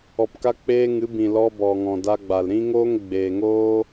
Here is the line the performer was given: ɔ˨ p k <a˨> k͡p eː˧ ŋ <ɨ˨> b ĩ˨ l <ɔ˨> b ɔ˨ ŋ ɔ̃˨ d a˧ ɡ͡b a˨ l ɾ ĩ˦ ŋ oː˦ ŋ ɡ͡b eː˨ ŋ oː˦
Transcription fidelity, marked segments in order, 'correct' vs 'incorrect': incorrect, incorrect, incorrect

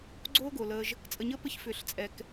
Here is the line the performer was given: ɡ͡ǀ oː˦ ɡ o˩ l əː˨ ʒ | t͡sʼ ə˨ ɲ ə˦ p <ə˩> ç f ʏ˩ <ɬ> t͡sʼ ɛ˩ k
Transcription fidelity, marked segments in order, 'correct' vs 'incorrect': incorrect, correct

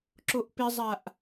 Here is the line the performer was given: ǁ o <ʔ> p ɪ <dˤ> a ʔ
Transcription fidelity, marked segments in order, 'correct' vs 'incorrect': correct, incorrect

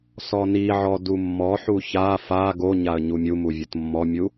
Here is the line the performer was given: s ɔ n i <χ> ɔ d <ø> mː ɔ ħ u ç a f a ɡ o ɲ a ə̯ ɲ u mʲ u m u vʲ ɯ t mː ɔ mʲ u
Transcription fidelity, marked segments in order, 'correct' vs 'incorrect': incorrect, incorrect

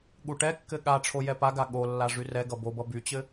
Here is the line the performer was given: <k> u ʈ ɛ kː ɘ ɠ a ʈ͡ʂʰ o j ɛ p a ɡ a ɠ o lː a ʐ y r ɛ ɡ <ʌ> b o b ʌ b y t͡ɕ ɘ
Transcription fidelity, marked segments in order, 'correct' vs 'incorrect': incorrect, correct

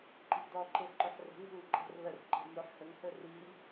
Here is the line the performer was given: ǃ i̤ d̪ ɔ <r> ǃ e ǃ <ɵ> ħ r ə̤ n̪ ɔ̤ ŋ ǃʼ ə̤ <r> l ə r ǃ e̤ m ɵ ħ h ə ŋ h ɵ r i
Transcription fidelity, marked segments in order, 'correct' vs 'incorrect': incorrect, correct, correct

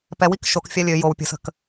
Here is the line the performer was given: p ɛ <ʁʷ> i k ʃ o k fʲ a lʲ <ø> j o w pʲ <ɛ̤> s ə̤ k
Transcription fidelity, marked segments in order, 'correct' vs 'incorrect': incorrect, correct, incorrect

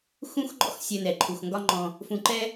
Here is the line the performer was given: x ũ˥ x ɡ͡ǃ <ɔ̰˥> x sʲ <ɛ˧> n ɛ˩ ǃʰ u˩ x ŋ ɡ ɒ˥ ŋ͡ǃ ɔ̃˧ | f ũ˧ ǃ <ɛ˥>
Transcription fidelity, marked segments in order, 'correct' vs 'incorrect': correct, correct, correct

